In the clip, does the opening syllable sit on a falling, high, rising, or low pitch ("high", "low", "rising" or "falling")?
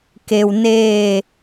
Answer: low